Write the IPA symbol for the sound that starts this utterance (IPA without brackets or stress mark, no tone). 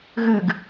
ɣ